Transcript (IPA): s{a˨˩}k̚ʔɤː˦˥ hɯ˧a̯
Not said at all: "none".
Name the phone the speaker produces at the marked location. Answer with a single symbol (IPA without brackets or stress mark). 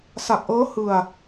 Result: a˨˩